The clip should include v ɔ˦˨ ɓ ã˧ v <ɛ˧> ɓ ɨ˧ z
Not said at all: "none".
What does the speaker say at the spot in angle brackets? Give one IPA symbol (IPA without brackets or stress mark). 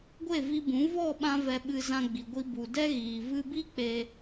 ɛ˧